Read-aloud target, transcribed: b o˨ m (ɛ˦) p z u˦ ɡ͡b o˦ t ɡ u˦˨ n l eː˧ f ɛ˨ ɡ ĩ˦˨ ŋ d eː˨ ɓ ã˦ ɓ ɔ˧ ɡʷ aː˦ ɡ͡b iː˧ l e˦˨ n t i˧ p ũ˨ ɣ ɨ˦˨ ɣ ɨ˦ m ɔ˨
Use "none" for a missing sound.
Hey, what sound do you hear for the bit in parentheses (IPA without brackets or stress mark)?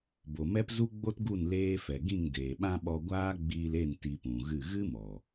ɛ˦